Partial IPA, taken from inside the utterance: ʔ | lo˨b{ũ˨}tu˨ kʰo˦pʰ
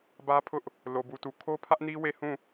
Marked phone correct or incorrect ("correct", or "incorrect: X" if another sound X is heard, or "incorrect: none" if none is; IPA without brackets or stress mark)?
incorrect: u˨